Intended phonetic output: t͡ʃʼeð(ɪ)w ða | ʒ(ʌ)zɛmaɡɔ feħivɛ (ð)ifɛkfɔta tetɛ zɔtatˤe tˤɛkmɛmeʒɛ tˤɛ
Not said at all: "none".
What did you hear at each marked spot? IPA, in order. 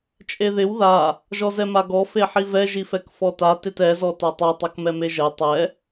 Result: ɪ, ɔ, ʒ

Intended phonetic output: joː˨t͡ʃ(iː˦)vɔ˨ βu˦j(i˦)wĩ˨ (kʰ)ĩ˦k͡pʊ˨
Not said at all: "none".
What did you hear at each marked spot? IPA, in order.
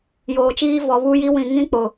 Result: iː˦, i˦, ŋ

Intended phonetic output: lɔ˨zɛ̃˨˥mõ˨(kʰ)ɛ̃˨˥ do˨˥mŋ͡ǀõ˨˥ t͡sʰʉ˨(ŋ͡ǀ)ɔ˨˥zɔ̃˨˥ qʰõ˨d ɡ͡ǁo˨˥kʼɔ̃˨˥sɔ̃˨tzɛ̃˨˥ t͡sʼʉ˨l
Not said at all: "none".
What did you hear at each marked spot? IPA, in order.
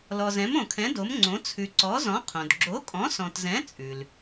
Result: kʰ, ǀ

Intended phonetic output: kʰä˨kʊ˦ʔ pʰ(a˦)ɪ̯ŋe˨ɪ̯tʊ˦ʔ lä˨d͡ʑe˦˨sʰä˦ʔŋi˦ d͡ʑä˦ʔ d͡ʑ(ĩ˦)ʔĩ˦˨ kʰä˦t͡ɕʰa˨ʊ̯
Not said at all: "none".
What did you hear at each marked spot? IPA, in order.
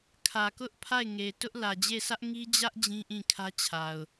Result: a˦˨, ĩ˦

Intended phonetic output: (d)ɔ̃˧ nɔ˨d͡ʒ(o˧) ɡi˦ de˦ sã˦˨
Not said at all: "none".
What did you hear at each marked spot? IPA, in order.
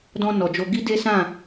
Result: d, o˧

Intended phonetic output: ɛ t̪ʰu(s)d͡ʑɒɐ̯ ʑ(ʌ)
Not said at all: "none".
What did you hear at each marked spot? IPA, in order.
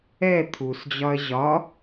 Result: s, ɒ

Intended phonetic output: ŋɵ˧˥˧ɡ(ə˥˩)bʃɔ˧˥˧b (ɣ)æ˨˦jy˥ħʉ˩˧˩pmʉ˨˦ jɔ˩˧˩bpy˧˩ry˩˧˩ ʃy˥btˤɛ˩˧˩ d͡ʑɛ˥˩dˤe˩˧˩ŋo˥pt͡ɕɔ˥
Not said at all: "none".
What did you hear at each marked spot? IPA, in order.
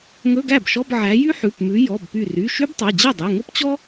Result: æ˥˩, ʕ

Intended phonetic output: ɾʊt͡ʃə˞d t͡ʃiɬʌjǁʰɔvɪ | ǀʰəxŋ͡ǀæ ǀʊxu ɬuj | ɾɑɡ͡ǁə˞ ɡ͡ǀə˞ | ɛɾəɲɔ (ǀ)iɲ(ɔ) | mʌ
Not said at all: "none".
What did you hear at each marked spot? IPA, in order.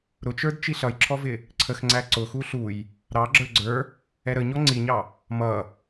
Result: ŋ͡ǀ, ɑ

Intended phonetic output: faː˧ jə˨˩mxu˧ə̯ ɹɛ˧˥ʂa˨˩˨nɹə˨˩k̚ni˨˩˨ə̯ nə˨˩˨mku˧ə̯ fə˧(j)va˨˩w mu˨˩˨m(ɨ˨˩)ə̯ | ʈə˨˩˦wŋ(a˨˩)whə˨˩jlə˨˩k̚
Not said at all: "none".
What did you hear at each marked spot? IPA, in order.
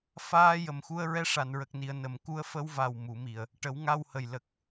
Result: w, i˨˩, a˧

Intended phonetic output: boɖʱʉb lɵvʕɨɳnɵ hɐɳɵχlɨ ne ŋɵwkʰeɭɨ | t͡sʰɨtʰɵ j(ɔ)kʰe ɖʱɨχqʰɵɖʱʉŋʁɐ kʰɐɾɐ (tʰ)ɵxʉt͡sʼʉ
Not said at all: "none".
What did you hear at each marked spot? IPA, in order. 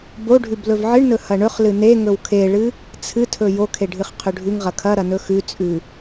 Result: o, n

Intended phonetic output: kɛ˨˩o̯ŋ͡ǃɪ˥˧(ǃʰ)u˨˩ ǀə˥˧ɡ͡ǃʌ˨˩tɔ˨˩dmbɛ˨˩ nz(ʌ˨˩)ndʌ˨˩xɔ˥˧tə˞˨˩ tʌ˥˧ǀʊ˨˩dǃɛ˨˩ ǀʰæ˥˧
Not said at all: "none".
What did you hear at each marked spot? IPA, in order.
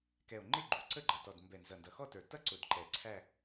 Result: ɡ͡ǃ, ʌ˨˩

